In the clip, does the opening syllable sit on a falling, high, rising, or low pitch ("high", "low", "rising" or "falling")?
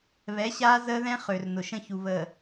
rising